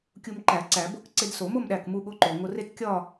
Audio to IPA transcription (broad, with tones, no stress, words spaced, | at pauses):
kʲu˧m ǃæ˨˩˦ ǀæ˨˩˦bo˥˨k ǀe˧dso˨˩˦ mo˥˨mɗæ˧˩kmu˧ ɠo˧ǃo˩ ŋo˧re˥˨tkʲɒ˥˨